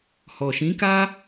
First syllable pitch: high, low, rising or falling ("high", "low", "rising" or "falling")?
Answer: low